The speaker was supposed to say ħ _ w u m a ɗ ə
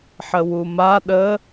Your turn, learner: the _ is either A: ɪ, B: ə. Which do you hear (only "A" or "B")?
B